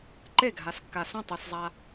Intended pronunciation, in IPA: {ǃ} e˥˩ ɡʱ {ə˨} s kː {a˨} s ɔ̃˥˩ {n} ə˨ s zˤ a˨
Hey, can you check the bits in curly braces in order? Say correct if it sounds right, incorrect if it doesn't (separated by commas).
correct, incorrect, correct, incorrect